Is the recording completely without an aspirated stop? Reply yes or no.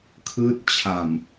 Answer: no